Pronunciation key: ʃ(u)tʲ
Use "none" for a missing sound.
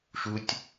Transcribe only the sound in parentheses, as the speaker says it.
u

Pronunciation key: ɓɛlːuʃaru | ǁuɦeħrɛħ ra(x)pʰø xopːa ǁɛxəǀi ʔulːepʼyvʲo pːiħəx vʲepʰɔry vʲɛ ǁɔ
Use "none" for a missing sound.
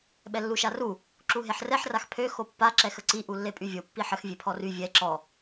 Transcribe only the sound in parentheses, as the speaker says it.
x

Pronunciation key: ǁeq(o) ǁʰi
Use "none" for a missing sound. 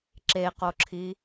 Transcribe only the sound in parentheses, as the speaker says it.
o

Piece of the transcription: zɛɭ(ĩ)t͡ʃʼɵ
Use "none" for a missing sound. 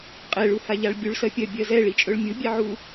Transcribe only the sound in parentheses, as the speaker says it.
i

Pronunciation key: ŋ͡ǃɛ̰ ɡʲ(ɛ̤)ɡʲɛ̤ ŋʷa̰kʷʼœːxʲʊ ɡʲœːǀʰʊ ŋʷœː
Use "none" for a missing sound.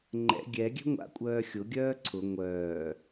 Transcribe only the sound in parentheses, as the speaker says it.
ɛ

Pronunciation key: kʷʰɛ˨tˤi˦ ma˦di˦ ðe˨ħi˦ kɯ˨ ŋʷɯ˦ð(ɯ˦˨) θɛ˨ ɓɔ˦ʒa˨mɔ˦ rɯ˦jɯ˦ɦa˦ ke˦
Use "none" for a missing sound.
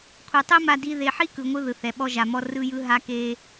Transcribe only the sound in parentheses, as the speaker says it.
ɯ˨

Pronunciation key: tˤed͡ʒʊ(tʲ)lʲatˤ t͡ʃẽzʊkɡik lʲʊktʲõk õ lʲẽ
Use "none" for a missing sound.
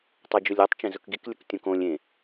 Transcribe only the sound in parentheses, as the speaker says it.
none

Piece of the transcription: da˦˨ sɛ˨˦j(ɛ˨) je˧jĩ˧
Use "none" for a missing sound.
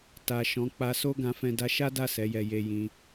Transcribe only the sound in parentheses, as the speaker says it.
ɛ˧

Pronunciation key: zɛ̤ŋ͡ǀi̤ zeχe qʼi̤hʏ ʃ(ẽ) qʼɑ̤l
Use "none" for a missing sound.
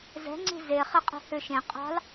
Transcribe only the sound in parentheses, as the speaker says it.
ẽ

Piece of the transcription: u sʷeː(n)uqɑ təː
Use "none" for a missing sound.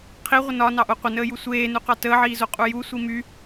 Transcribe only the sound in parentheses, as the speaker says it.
n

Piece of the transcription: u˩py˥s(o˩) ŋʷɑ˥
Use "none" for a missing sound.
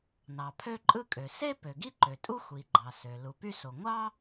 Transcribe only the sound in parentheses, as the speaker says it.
o˩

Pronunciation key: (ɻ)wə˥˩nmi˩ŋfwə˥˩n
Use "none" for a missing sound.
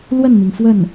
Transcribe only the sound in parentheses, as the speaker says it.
l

